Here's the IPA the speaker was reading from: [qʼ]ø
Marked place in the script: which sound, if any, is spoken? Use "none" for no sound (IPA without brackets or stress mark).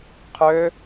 qʰ